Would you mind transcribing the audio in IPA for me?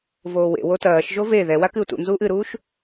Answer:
voːwḛ wotɐːʃ ʒove ðɛwa kɨu̯tṵnzuːʔ ɨɾuːʃ

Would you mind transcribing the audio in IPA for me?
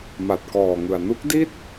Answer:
ma˨˩t̚kɔː˨˩ŋɯ˨˩a̯ nu˦˥k̚di˥˩t̚

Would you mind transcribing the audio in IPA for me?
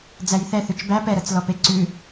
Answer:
d͡zæjθɛ θʉt͡ʃbæ pɛɾɤt͡slɔ peǀʉ

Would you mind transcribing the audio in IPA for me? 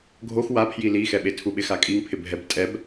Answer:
ɡʱox wapʰji lixɛɓe tʰuɓɪ xakʼiŋpʰɪ bʱɛb tʼɛb

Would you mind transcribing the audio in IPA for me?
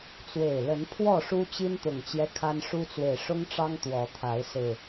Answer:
t͡swe˨˩ɪ̯ lə˨˦n pʰwɔ˥˨ʂu˦ t͡ɕi˦n t̪ʊ˨˩ŋt͡ɕjɛ˦ kʰa˦nʂu˦t͡swe˨ɪ̯ ʂʊ˦ŋʈ͡ʂɑ˦ŋ t̪wɔ˨˦t̪ʰa˨˦ɪ̯ sɹ̩˨˩

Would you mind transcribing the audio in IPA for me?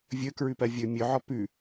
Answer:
vʲɵkɹʉpɜ vʲɵ mʲɵʕɔ pʉ

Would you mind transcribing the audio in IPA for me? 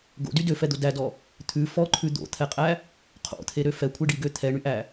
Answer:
ɡo̰dy døfɛd̪o dædɔ | t̪ʰʉ fɔǃʰʉ d̪o̰t̪ʰɛqʼæ | qʰo̰t̪ʰeɾø fɛkʷʰeɖiɡø t̪ʰɛɳyʔæ

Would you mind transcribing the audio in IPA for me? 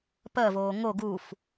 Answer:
pɜvoː ŋo ɡuf

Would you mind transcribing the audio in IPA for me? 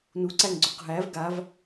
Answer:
nuǀæŋɡ͡ǀoq ɦæv ɡav

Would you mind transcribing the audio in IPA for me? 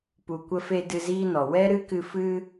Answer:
pu˨kʷə˧fe˧ dɨ˧ziː˦nɔ˨ wɛ˦ɾɨ˦kɨ˧ fɨ˦

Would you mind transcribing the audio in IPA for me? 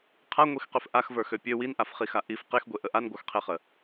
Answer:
qʰaŋʷixqøf ʔaxvə˞xø pʲø winʔafχixa ʔif qexɡʷeʔə ʔanɡʷə˞xqʰeχə

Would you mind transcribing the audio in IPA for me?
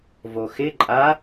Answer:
voxɪ ǃʼa

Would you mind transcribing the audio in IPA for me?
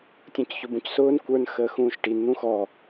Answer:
tʲũcçʊbũcsʊːn kʷə˞n xəːxũːʃʈin n̪ũxɔ

